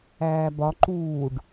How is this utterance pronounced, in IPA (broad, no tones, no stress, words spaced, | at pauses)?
æːbɒ ǃuːɖ